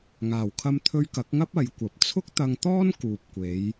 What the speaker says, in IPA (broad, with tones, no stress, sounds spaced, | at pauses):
ŋ aː˨˩ w kʰ ɐ˧ m t̪ʰ ɵ˧ ɥ k ɐ˨˥ k̚ ŋ ɐ˥ p̚ ɐ˨˥ j kʷ ɐ˨˥ p̚ t͡sʰ ʊ˥ k̚ t̪ ɐ˧ ŋ t̪ ɔː˥ n k uː˨ p̚ kʷ e˨˧ j